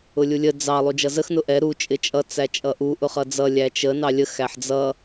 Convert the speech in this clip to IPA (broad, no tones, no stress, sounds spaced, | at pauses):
ʊ lʲ u lʲ ə d͡z ɑ lˠ u d͡ʒ ʌ z ə x n ʊ ʔ ɛ ɾ u t͡ʃʼ ɪ t͡ʃʼ ʌ t͡s æ t͡ʃʼ ʌ ʔ u ʔ ʊ χ ʌ d͡z ʌ lʲ æ t͡ʃ ə n ɑ lʲ ə x æ ħ d͡z ʌ